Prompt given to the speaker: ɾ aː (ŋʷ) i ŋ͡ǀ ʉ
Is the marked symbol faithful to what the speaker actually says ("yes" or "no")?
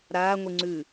yes